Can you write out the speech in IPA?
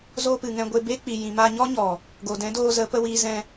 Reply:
zoː˧pɨ˨ŋɛ̃˧ɡʷe˧ be˦k͡pi˨ jĩ˨ma˧ɲɔ˦ɲɔ˨ | ɡo˨ dɛ̃˨˦doː˧zə˨˦ pə˧wiː˧zɛ̃˧

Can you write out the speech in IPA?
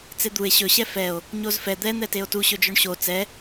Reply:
t͡sed̪ue̯ ɕɵ ɕɛfɛo̯ | ɲozfɛ d̪ɛ n̪ɛteo̯tu ɕɵd͡ʒoɳɕo t͡sɛ

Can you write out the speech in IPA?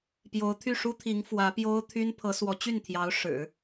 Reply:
pjo˧˥ʊ̯t̪ʰy˥˩ʂu˥t̪ʰi˧˥ŋ fwä˧˥pjo˥ʊ̯t̪ʰy˥n pʰɤ˧˥swɔ˧˥t͡ɕy˥˩nt̪ʰjɑ˧˥ʊ̯ ʂɻ̩˨˩˦

